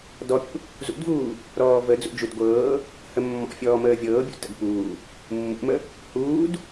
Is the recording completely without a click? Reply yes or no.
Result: yes